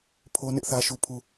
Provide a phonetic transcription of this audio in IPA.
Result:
pʰ o˦ n ɪ˦ ʔ θ ä˦ ʃ u˦ pʰ u˦

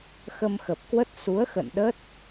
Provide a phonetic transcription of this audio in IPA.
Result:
x ə˧ m x ə˨˩ p̚ k w ə˦˥ t̚ s u˨˦ ə̯ x ə̰˧˨ n ɗ ə˦˥ t̚

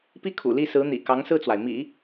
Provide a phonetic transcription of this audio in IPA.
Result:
p i˥ kʰ ṵ˨˩ l i˥˩ s ɹ̩˧˥ n̪ ḭ˨˩ k ɑ˧˥ ŋ s ɹ̩˥˩ t͡s w a˩ ɪ̯ m ḭ˨˩˦

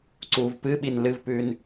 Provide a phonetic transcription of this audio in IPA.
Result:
ǀ uː v p ɨ ɓ i n l ɨ v p ʉː n

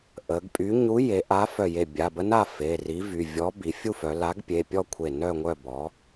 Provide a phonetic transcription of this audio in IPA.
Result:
ʔ ə˩˧ ɡ pʼ y˨˥ ɲ u˨˥ j e˩˧ ʔ a˨˥ f œ˧˩ j e˧˩ bʲ a˩˧˩ b ə˦˥ n a˥˨ f e˩˧˩ r i˨˥ v y˩˧˩ vʲ ɔ˨˥ b i˩˧ fʲ u˥˨ f œ˩˧ l a˨˥ ɡ pʲ e˩˧˩ pʲ ɔ˥˨ kʷʰ e˧˩ n œ˥˨ ŋʷ œ˥˨ b ɔ˨˥

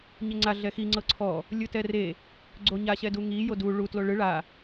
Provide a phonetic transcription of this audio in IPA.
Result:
ɲ e ŋ͡ǀ a ɮ ɛ x i ŋ͡ǀ ɤ ǀʰ ɔ | lʲ ɯ t ɛ r e | ɡ͡ǀ o ɲ a ɕ ɛ d u ŋ i j o d u ɭ u t l o ɭ ɯ ɭ a

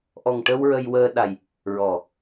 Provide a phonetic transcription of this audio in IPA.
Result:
ʔ ɔ˨˩ ŋ ʈ ə˧ w ɹ ə˧ j w əː˧ ɗ a˨˩ j | ɹ ɔ˨˩˨

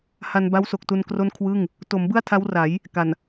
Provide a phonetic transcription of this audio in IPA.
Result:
h a˧ n b a˦˥ w s o˨˩ k̚ t u˧ n k r o˥˩ n kʰ w ɯ˥˩ ŋ | t o˩˦ m b ɯ˥˩ a̯ tʰ a˦˥ w r a˩˦ j | k a˨˩ n

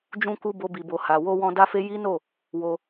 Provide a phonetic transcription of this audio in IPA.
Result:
d͡ʒ ũ˧ k u˧ b o˧ b i˨ b o˨ h a˨ w o˧ w ɔ̃˧ d a˦ f e˦ j i˦ n o˦˨ | w o˧

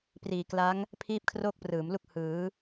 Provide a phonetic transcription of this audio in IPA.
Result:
p r iː˨˩ k l a˦˥ ŋ | pʰ iː˥˩ p̚ kʰ r oː˥˩ k̚ p r ɯː˩˦ m l u˥˩ k̚ h ɯː˩˦

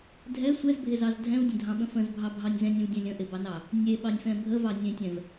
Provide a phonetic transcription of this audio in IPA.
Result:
dʱ ɛ sʷ ɛ z bʱ e z ɑ z dʱ ɛ̃ v dʲ ə̃ dʱ ɑ̃ ɓ ə̃ f ə̃ z bʱ ɑ bʱ ɑ nʲ z ɛ̃ nʲ ẽ v dʲ ɛ̃ lʲ ə̃ ʔ e b ɑ n ɑ | nʲ e ɓ ɑ nʲ f ɛ̃ bʱ ə v ɑ nʲ ẽ tʲ ɛ̃ v

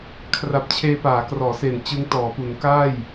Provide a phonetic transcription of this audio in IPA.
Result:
kʰ r a˨˩ p̚ t͡ɕʰ eː˧ p aː˩˦ k r ɔː˩˦ s e˨˩ n t͡ɕ ɯ˦˥ ŋ t ɔː˩˦ p u˩˦ n k aː˥˩ j

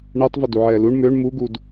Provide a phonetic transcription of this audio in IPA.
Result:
ɳ ɛ tˤ v ə d u ʕ ɛː l u ɳ m ø ɳ m u ɡ u d

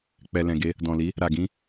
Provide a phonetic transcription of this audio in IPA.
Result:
k͡p ɛ˨ l ɛ̃˨ ɡ e˧ | d ɔ̃˨ l i˨˦ | ɾ a˨ ɡ ĩ˧

